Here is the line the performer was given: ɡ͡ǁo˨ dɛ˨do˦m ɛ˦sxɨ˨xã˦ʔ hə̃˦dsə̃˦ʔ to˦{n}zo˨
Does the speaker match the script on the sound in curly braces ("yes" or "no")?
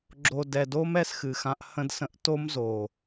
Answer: no